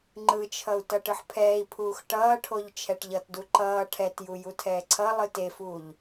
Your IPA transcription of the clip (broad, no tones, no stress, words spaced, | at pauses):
ŋ͡ǃɯt͡ʃʰʌu̯ tʌʈɯħpʰɛːi̯pʰuːx ʈʌːʈʰoʎ t͡ʃʰɛʈʎʌtdu ǃʌː ʈʰɛtju jutʰɛːǀʰʌlˠɯ tefuːʎ